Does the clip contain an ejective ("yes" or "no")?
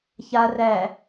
no